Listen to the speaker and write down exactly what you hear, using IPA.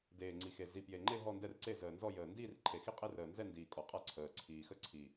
deː˨˩ŋ͡ǀi˨˩xe˨˩ zi˨˩ pje˨˩ŋ͡ǃe˥˧ ɦɔ˥˧ndɛ˥˧rǀe˥˧ zəː˨˩nzɔ˥˧ jəː˨˩ ndiː˥˧rǃʰe˨˩xi˥˧ qʼe˥˧r əː˨˩nzɛ˥˧ ndiː˨˩ kʼɔ˨˩qʼa˥˧ǀʰəː˨˩ ǀʰiː˨˩xə˥˧ǀʰi˨˩

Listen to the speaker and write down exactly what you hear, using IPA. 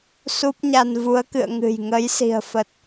su˦˥p̚ɲa˧n vu˨˦ə̯kɨ̰˧˨ə̯ ŋɨ̤˨˩j ŋə˨˦j si̤˨˩ə̯fə˨˩t̚

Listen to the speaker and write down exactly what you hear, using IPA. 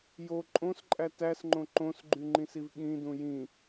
jo ǃʼõsǃʼæ tæsŋ͡ǃõ ǃõsɡ͡ǃyŋ͡ǃĩsiv ɠĩdũ jĩ

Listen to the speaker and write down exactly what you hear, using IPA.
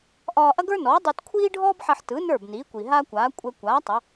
ʔɒː˧ʔɐ˥ɡə˞˥nɔː˩˥ dˤi˧tkʷʰiː˥ɖʱɔː˥bħɐ˧ħ tɯ˩˥ nə˞˥˩bniː˩˥kʷi˩ ɦa˥kʷaː˩˥ kʷʼɛ˧ kʷaː˩˥ tˤɐ˩˥

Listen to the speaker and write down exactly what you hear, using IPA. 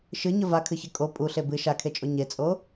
ʃɨɲə vakʰɨçɘ kʼo pʼuɬe bɨ ʃakʰet͡ʃʼo ɲet͡sʼo

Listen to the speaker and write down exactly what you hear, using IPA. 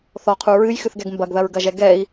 θɔqʰu ɹɨjxɨθɡɛɡ mbɐɡðɐɹɡɐʒɛ ɡɛi̯

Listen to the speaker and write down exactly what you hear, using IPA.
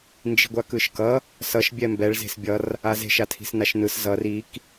nd͡ʒi̤ɡʷakɯʃkʌ | sʌʃ bʲɛmbɛɭ ze̤sbʲʌr | aze̤ʃ atʰi̤snaʃnɯs zʌr ik

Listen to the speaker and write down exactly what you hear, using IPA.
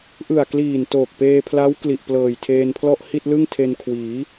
ʔɯ˨˩a̯kliː˨˩n toː˨˩k̚peː˧pʰla˦˥w kli˨˩ʔplɤː˨˩jtʰeː˧npʰlɔ˥˩ʔ hi˥˩t̚lɯ˥˩ŋtʰe˧nkʰwiː˩˦

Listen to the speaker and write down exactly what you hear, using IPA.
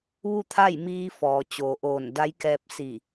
ʋu˥˨t̪ʰa˥˨j miː˧ fɔː˩ t͡ɕoː˩ʔoː˧˩n da˧˥jkɛː˧p̚ si˧˩

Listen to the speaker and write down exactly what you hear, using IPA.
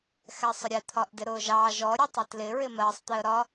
xɛsˤʊɾʲɛ t̪ʰɒʔdɪɾʊːʒɑ ʒɔ ɾʲʊtˤɪtlɪ ɹɪmɜsˤ t̪ɪə̯ɾɒ

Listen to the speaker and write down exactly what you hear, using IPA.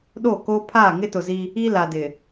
ɗo˦˨koː˦ pʰaː˦˨ŋɪ˦ tʊ˨zi˦ | i˦ la˨dɪ˨

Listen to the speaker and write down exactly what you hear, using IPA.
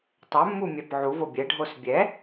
tˤɛmːu mʲæpʕuvo bʲɛɖʱos bʲɛ

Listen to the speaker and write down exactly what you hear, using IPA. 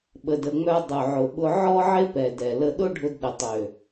ɓə˧də˧ŋ͡mœ˦ dˤʊ˨ʕʊ˨ɓʊ˧ ʕɔ˦ʕɪ˦pɛ˨dɛ˨ lə˧ɗʊ˦ɖʱʊ˧d ɗə˨tˤø˨

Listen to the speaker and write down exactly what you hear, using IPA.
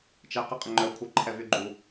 t͡ʃɛ qəqʼəŋ͡ǃœkʷʰœ ǃʰɛvyɡ͡ǃu

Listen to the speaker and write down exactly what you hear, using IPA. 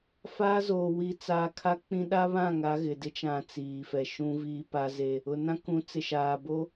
faː˦zoː˨ wi˨t͡saː˨kʰa˦ k͡pĩ˦ ɗa˦βã˦˨ŋa˨˦ ɣɪ˨ dɪ˦t͡ʃã˨ t͡siː˨fɛ˨ ʃũ˦viː˦pa˦ze˦˨ | ʊ˨nã˦kũ˨˦ t͡sɪ˨ʃaː˨ bo˦

